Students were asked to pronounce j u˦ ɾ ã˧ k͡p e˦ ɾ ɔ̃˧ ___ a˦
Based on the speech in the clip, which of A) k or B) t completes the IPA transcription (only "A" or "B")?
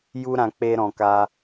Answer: A